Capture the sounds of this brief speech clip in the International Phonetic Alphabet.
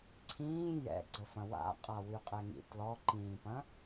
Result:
ǀʰĩː jɛ̰ɡ͡ǀəfɐ̃ wa̰qʼa wyqʼɛŋḭ tlɔǃĩːpɐ̃

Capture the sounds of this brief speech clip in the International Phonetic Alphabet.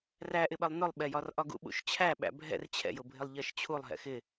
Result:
ræʔɪɓɜlˠ nʊlˠɓɛjɒr ʔɒɡṵɓṵʃt͡ɕʰæ ɓæ̰bʱɛ̰r t͡ɕʰɛ̰jʊbʱɪlˠ ʎɜʃt͡ɕʰulˠ ɦɛ̰xɪ

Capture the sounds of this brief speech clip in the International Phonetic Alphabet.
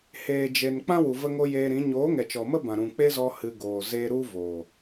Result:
heː˨d͡ʒe˨nk͡pã˦ wu˨və˧ŋo˧ jeː˧ɾĩ˨˦ ɲoː˨˦ŋɛ˨t͡ʃɔ˨mə˦ bã˨ɾũ˨k͡pe˦zɔ˧ hɨ˧ɡoː˨zeː˦ ɾu˦ voː˨

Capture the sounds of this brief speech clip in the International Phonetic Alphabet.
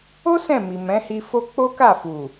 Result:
o˦ sɛ̃˦˨ mi˨mɛ̃˨˦hi˧fo˦ k͡po˦ka˦˨fu˨

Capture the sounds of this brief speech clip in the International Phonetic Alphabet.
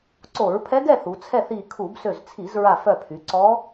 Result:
ǀo˧˩˧ɹpʰɛ˧˥ɡɛ˥˨ θu˩˧t͡sʰɛ˥˨θ i˧˩kʰu˧˩˧b sø˧˩zt͡sʰi˧˩˧zɹa˧˩ fœ˧˩pʰy˩˧ǀɔ˧˥

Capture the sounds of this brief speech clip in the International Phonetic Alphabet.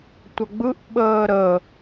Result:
tʷʌɡ͡bɯʔ ɓəːɾə

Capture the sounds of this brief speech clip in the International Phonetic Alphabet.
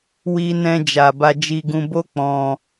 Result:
wi˧nɛ̃˧d͡ʒa˨ba˧ d͡ʒi˧ɡũ˧ bo˦ k͡pɔ̃˧

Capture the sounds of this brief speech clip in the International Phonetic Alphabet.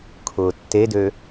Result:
kʰʊːtːedø

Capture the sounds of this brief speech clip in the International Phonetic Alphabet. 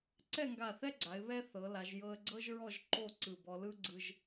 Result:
ǀɛ˥˧ŋɡa˧˩θɛ˥ɡ͡ǀa˩˧ɪ̯ βɛ˥θɤ˩˧la˩˧ʒ jɤ˧ə̯ɡ͡ǀɤ˥ʒɹɔ˥˧ʒ ǃo˥˧ ǀɯ˧˩bɔ˧lɯ˥ ɡ͡ǀɯ˧ʒ

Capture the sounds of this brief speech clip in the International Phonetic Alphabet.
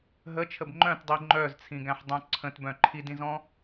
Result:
ɦət͡ʃʰəb ŋ͡ǃœ̃tdˤi ŋ͡ǃœzt͡sʰĩɡæ̃ħdˤœ̃ ǀʰə̃tbœ̃ ǃʰidĩzɔ̃

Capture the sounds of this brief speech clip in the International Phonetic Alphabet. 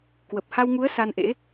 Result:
kwə˨˩p̚ha˧wŋu˨˦ə̯ sa˧nʔḛ˧˥

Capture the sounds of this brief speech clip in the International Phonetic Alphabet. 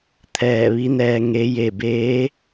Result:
t̪ʰɛː˧˩ʋi˧˥nɛː˧ ŋe˧˥je˥˨ beː˧˥

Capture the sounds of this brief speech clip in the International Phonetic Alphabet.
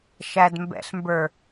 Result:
ʃædmbɛ̰ɬmbə˞

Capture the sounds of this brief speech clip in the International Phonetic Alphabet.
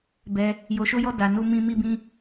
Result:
bɛ˧ | jo˧ʃo˦jɔ˦ da˧nu˦ mĩ˧ mi˦bĩ˦

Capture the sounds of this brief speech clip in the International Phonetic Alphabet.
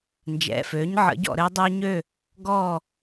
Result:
nd͡ʒɛ̰˩˧˩føː˩˥ɲʕə̰˩˥ɟɔ̰˥˨ ɾɘː˦dˤøː˦ɲø˥˨ | ɡɔ˥˨

